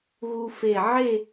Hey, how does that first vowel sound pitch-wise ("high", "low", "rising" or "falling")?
high